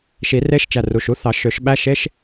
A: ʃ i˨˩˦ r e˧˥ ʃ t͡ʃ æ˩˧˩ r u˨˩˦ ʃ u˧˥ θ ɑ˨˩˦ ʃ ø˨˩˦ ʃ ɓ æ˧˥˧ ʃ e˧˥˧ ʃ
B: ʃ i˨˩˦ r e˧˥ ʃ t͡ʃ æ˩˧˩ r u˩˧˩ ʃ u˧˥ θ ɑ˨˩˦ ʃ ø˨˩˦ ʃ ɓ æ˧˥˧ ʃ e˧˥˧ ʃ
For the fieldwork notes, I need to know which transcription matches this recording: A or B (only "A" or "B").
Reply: B